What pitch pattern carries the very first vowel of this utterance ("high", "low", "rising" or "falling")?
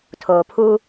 low